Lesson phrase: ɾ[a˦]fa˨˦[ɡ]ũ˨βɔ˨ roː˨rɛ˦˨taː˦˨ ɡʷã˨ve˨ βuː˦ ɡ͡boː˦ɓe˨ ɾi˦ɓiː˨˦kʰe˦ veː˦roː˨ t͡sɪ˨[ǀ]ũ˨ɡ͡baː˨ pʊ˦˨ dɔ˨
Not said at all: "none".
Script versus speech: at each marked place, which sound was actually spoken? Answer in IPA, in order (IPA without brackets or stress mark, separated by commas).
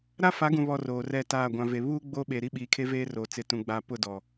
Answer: a˦, ɡ, t